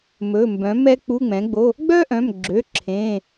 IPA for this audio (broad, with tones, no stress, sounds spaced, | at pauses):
m ɵ˩˧˩ m b œ̃˩˥ m ɛ˥ k͡p u˧˥˧ ŋ͡m ɛ̃˩˥ ɡ͡b o˧˥˧ | ɡ͡b œ˥ ʔ œ̃˩˧˩ m ɡ͡ǁ ø˩˧˩ ǁʰ ẽ˩˧˩